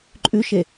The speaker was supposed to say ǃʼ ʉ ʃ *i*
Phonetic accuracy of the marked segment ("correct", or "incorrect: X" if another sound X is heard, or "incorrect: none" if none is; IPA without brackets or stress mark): incorrect: e